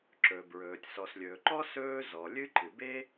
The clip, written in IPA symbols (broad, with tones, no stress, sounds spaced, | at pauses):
ǁ ɵ˩ b ɹ ɵː˩ tʲ s ɔ˩ s lʲ ɵː˩ ǃ ɔ˥ s ɵː˥ z ɔ˩ lʲ ɨ˥ ǃ ɨ˩ b e˥